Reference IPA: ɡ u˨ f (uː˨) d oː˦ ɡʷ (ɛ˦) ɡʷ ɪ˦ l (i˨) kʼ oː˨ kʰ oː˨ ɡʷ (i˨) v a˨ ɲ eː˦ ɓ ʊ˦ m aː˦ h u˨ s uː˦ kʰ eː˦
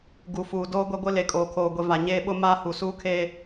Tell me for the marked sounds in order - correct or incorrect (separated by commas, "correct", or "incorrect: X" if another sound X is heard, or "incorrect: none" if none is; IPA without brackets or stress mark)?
correct, correct, incorrect: e˨, incorrect: e˨